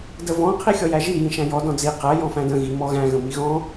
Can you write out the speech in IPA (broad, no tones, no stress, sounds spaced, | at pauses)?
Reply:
d ə v ɔ̃ qʰ i xʲ ɔ j æ ʒ i j ĩ ʃ æ̃ j ɔ d ɔ̃ d͡z i q æ j ɔ̃ f æ̃ d ə̃ ɣ i m ɔ ɣ æ̃ ɣ ə̃ m i ɣ ɔ̃